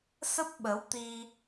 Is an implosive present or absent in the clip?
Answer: present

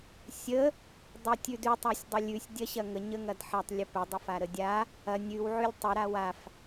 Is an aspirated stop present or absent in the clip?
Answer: absent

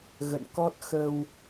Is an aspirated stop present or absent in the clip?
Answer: absent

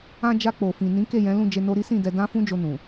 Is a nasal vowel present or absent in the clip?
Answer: present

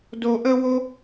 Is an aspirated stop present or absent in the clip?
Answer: absent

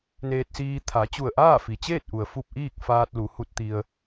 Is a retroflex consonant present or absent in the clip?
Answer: absent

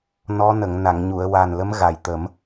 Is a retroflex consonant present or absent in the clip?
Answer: absent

